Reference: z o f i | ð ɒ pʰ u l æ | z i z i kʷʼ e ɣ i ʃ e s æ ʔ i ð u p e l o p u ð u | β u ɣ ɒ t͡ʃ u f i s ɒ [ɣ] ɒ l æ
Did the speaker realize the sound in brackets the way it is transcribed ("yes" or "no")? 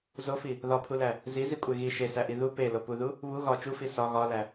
yes